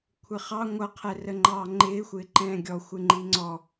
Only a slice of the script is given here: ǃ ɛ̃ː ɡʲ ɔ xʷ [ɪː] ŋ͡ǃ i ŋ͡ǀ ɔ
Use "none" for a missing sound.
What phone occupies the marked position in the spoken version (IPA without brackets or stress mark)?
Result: ɪ